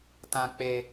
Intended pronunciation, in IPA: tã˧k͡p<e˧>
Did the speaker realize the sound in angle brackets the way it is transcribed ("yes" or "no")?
yes